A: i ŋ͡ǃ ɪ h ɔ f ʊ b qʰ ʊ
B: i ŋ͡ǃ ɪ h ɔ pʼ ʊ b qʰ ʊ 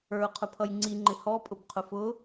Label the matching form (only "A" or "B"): B